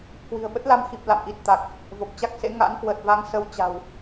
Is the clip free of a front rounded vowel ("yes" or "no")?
yes